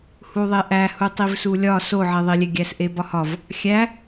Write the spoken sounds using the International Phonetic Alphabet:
h u ðˤ e ʔ æ h u tˤ i v s u lʲ ɒ s o ʕ e ðˤ i lʲ e ɡʲ æ s ʔ e b ɒ h ɒ v | xʲ æ

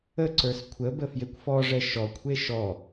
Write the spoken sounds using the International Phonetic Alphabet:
ə ǀ ə˞ s kʷʰ ə b ə f j e kʷ f ɔ ʐ ɛ ʃ ɔ kʷʰ e ʃ ɔ

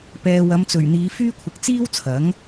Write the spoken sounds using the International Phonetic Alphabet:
p ɛː˨ w ɐ˨˧ m t͡s ɵ˨˩ ɥ n̪ iː˨˧ f yː˥ kʷʰ ɪ˨˥ k̚ t͡s iː˥ w t͡sʰ ɐ˨˥ ŋ

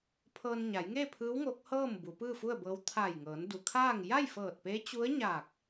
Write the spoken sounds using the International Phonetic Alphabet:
pʰ ɤː˧ n ɲ a˩˧ j ŋ e˥˨ pʰ ɯː˧˥ w ŋ o˧˥ k̚ h ɤː˥˨ m b u˩˧ p ɯː˥˨ f u˥˨ ə̯ b ɤː˧˥ w t̪ʰ a˧˩ j ŋ ɤː˩˧ n d u˩ kʰ aː˥˨ ŋ j a˥˨ j f ɤː˧˩ t̚ p e˧˥ t͡ɕ u˧˥ ə̯ ɲ aː˧˩ k̚

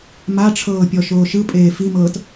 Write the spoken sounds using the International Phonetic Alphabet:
m a ʈ͡ʂʰ ɤː pʲ ɔ ʃ oː ʃ ɯ pʼ eː f i m ɤː t

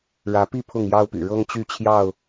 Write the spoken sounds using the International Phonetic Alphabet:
ɻ ä˨˦ p i˥˨ pʰ ʊ˥˨ ŋ j ɑ˦ ʊ̯ p y̰˨˩ ɻ ɤ˦ ŋ t͡ɕ y˥˨ t͡ɕʰ j ɑ˥˨ ʊ̯

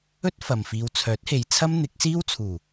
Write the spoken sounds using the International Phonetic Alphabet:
ɵ˥ t̚ f ɐ˨ m f iː˧ w t͡sʰ œː˨˥ t̚ h e˨ j t͡sʰ ɐ˥ m n̪ ɪ˨˥ k̚ s iː˥ w t͡sʰ uː˨˩

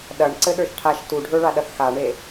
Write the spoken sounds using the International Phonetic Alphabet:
ɗ ɐ ɳ ǀ ɘ ɗ ə˞ ʃ ʈʰ a ʃ t u ɖʱ ə˞ ɭ a ɗ ɐ θ x a ɳ e

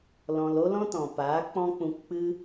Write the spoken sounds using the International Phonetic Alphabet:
l ɔ̃˧ l o˦ l ɔ̃˦ t ɔ̃˨ p aː˨˦ k͡p ɔ̃˦ k͡p ũ˧ k k͡p ɨ˦

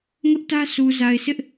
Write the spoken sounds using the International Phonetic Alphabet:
ŋ ʊ˦ ʔ t ä˦ s u˨ z a˨ ɪ̯ s ɪ˦ ʔ

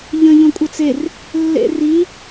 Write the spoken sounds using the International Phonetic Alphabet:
ʎ ə̃ ʎ õ kʷʼ ɘ t͡s e r | lː ḛ r i

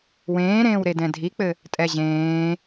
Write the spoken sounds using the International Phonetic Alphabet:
w ẽː ɾ ẽː w ɾ e d ɛ̃ dʱ i k͡p ɘ | tʼ ɛ ʑ ẽː

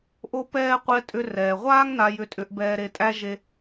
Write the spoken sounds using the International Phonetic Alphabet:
ʔ o˥ p ɛː˥ qʷ ɛ˧ tʼ ʏ˧ r ɛː˩ ʁʷ aː˥ ŋ n a˧ j ʏ˧ tʼ ʏ˧ ʔ b ɛː˧ ɾ e˧ tʼ æ˥ ʒ e˧

